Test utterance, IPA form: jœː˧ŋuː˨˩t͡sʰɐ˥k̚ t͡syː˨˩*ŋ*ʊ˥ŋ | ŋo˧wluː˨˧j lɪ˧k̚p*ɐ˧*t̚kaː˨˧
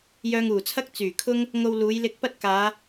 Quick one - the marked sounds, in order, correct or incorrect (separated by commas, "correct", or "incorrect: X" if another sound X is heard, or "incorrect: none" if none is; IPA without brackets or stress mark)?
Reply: incorrect: kʰ, incorrect: ɐ˥